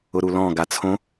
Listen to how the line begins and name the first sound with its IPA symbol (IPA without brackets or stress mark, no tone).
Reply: ʊ